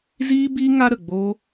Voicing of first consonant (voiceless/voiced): voiced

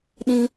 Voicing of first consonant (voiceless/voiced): voiced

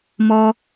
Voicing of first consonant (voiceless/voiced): voiced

